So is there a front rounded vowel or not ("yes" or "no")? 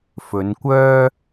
yes